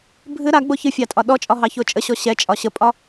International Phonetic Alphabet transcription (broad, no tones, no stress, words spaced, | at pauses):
bʱɨ ɾaɡ͡bo çɨfʲɑtʼɒ ɗɔt͡ʃʼɒɦɑço t͡ʃʼəɕɔ ɕɛt͡ʃʼɒ ɕəpʼɒ